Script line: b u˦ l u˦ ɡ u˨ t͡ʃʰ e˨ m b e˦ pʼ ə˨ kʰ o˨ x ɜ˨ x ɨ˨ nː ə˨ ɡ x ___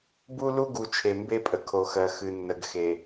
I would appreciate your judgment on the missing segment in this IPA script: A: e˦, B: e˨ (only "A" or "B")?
B